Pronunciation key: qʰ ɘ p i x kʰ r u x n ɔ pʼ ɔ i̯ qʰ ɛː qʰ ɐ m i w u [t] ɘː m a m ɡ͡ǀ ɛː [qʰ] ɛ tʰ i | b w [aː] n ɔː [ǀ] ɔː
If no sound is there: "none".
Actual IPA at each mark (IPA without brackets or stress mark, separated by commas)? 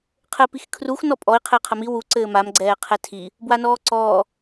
ǀ, qʰ, a, ǀ